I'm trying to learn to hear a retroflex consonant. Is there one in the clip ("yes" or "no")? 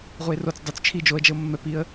no